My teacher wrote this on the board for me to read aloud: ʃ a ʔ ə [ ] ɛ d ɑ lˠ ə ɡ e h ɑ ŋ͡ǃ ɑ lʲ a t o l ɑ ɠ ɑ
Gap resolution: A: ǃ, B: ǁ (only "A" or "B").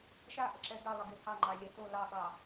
B